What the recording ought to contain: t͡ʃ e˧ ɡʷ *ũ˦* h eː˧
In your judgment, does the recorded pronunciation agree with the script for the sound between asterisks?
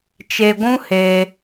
yes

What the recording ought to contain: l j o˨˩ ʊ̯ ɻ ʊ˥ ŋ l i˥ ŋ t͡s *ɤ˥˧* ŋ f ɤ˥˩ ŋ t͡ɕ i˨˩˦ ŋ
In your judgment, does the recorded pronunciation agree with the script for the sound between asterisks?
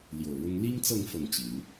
yes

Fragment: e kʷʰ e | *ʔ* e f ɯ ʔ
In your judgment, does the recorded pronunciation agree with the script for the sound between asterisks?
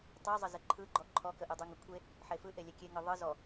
no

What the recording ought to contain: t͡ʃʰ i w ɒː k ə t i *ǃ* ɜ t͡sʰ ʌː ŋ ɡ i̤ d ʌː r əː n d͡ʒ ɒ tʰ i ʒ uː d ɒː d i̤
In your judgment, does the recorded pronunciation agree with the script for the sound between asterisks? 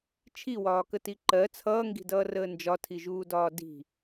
yes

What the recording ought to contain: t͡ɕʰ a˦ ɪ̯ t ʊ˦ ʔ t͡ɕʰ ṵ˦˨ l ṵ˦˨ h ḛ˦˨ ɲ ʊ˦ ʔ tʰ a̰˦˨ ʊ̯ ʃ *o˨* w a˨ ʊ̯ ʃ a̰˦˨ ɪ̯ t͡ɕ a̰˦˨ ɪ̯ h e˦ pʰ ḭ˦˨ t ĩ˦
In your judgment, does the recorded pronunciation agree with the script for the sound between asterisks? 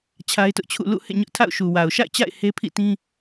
no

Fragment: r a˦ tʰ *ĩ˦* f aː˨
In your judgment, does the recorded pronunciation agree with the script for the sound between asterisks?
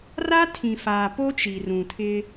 no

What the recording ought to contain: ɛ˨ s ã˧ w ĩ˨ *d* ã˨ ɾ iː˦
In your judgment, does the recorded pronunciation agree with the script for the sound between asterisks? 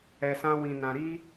no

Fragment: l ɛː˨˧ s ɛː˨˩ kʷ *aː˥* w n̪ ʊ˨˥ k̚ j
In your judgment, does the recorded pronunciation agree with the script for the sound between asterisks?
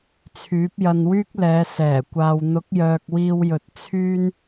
no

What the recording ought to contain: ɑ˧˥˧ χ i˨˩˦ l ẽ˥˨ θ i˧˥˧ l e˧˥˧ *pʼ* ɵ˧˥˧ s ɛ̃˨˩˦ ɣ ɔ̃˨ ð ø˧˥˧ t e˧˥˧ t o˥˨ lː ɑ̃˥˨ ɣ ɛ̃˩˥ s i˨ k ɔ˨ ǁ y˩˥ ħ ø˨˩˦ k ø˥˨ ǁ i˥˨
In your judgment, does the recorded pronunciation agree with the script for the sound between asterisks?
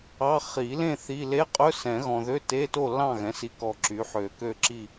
no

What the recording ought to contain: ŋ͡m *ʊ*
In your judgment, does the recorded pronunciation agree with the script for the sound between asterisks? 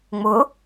yes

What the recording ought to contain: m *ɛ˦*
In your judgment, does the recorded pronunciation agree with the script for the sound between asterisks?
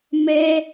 yes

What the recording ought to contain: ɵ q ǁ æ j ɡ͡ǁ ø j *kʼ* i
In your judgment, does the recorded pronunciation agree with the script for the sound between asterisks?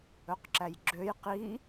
no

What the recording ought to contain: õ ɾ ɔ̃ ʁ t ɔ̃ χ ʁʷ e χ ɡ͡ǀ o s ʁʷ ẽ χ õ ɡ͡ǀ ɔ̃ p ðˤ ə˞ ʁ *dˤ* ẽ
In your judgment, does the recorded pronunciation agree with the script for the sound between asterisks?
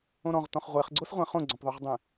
yes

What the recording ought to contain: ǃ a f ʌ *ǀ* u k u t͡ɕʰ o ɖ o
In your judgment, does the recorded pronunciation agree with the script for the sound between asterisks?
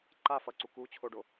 yes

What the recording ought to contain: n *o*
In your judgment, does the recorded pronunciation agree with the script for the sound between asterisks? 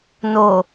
yes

